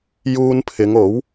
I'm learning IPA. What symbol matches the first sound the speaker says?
j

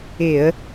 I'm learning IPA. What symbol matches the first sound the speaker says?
ɪ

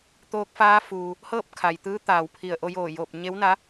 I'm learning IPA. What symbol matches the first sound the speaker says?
t̪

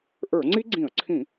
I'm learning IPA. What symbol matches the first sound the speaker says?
ʔ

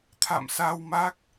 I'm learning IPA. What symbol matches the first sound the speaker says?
t̪ʰ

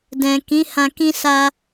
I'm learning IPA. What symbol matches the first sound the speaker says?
d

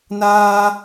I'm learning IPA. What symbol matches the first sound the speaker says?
n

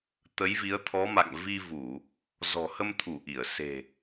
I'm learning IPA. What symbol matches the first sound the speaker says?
t̪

